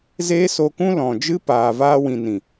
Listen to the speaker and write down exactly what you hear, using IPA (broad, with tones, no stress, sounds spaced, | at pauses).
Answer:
z eː˦ s o˧ k ũ˦ l ɔ̃˨ d͡ʒ ɨ˦ p aː˨ v aː˧ w ĩ˨ n ĩ˨